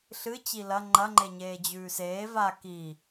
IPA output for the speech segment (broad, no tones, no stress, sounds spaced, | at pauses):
ɬ ɨ t͡ɕ i l ɐ ŋ͡ǃ ɐ ŋ͡ǃ e ɲ eː d͡ʑ ʉː s eː v a k i